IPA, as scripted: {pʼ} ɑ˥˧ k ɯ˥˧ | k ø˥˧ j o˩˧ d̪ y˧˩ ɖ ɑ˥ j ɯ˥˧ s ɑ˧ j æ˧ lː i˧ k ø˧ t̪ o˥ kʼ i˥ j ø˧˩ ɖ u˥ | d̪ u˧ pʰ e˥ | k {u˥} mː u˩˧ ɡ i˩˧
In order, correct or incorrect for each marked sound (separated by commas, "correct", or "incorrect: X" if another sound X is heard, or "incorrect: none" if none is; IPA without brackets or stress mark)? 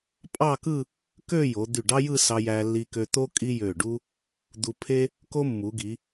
correct, incorrect: o˥